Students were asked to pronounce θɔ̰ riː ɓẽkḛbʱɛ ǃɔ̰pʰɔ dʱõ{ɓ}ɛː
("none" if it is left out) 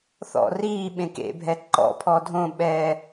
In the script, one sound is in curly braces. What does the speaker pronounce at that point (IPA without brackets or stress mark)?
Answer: ɓ